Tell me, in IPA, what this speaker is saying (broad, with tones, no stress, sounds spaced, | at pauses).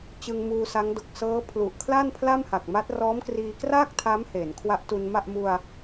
t͡ɕ ɯ˧ ŋ m uː˧ s a˦˥ ŋ d o˨˩ k̚ s ɤː˦˥ pʰ l u˨˩ ʔ kʰ l a˥˩ n pʰ l a˥˩ m h a˨˩ k̚ m a˦˥ t̚ r ɔː˦˥ m k r iː˧ k r aː˥˩ k̚ tʰ a˦˥ m h eː˩˦ n kʰ w a˦˥ ʔ t u˧ n m a˥˩ ʔ m u˧ a̯